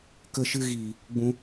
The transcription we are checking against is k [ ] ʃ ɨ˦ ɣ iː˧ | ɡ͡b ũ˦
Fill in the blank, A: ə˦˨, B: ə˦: B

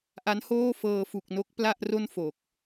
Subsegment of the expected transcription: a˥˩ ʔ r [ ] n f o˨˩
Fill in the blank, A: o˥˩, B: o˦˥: A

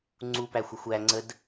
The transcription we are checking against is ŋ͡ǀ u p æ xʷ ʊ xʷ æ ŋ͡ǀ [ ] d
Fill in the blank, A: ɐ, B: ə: B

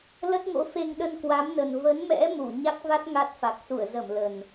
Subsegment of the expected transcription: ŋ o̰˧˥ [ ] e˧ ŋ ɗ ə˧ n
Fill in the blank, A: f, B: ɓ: A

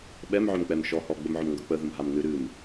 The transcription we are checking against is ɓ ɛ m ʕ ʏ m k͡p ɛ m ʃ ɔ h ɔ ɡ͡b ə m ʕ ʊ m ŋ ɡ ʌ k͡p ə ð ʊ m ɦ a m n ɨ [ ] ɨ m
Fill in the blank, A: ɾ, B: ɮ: A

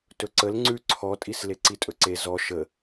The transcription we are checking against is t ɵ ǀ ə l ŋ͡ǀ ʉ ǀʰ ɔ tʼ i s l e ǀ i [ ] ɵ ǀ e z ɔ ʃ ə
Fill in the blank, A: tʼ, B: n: A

